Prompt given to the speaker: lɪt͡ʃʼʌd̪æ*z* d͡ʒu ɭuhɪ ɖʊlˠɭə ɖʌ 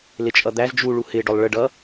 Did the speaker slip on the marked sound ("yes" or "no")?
no